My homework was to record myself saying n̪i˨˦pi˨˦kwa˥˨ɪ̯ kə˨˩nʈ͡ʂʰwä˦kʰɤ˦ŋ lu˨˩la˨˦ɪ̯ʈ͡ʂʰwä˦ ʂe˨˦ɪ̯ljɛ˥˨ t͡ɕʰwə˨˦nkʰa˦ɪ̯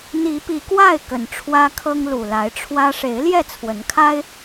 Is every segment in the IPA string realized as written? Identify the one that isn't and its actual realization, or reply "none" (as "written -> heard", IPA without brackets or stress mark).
t͡ɕʰ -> t͡sʰ